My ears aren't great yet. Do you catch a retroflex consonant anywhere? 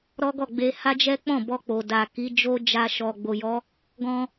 no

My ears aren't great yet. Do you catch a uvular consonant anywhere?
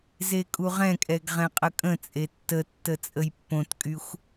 yes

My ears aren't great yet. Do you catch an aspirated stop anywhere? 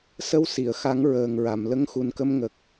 no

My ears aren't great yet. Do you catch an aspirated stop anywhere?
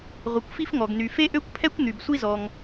yes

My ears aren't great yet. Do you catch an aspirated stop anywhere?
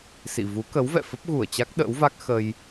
no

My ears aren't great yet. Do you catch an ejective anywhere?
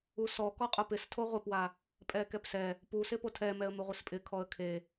yes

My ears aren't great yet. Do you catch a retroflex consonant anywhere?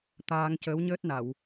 no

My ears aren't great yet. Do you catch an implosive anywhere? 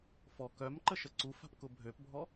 no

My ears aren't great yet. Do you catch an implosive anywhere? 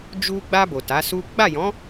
no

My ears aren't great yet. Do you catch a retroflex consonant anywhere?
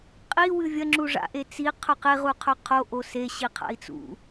yes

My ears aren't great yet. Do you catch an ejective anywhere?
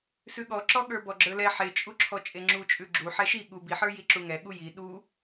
yes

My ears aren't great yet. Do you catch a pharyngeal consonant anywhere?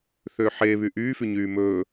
yes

